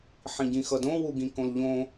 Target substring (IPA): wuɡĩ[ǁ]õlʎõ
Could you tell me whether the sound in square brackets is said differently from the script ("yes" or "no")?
yes